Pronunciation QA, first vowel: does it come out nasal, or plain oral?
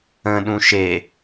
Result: nasal